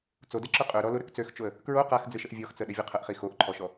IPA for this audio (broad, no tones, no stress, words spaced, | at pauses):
t͡sodɛ ǁʊqʼø ɾɔlʊ ɾəkt͡søxt͡ʃoə̯ | kɹo qaxd͡zɨʃəʔ vʲɔxt͡səɗɘ vʲʊqʰəʔχi xoʔǃʰɔʃɔ